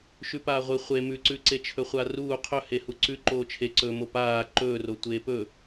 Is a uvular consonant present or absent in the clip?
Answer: present